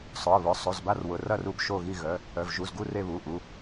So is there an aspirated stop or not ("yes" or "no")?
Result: no